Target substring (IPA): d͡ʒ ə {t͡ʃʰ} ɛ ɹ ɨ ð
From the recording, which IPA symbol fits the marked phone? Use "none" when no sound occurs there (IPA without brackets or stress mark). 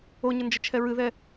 t͡ʃʰ